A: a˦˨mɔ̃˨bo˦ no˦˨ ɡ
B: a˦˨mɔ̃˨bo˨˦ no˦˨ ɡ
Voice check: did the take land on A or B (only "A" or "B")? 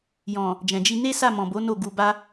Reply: B